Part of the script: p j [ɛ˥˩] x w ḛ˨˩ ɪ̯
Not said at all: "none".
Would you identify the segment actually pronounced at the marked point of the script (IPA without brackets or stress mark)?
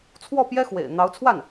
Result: ɛ˥